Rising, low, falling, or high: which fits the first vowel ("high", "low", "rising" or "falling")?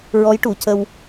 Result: rising